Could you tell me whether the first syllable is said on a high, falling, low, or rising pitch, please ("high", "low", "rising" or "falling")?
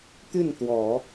falling